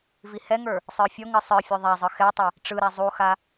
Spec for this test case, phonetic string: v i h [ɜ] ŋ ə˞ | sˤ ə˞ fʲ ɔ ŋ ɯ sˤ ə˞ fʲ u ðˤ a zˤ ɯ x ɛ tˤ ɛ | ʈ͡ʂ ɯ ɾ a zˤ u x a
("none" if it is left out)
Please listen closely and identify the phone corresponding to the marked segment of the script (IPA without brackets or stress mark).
ɛ